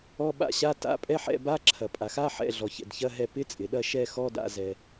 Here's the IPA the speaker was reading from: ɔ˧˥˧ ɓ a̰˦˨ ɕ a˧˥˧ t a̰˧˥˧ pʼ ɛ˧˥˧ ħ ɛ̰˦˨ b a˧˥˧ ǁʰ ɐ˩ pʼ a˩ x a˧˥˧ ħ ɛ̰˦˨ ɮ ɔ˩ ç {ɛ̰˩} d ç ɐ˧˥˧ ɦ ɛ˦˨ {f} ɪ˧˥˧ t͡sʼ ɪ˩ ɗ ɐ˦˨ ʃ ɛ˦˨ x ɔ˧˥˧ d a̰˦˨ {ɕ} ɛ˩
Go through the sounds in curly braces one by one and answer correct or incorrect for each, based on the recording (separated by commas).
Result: correct, incorrect, incorrect